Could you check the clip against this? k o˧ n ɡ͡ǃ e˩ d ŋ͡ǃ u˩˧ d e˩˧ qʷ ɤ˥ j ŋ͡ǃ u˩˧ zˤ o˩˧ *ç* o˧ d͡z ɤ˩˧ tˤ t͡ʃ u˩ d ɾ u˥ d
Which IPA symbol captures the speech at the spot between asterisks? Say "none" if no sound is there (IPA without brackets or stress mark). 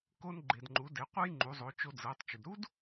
t͡ʃ